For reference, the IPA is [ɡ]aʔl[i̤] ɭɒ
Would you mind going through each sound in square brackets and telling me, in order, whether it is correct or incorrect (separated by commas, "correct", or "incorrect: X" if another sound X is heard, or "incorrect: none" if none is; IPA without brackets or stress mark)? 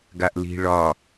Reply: correct, correct